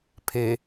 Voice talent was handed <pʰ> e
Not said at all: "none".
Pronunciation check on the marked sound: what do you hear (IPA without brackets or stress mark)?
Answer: pʰ